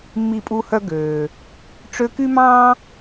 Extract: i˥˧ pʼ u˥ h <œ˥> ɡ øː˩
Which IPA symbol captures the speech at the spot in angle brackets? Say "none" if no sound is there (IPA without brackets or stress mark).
œ˥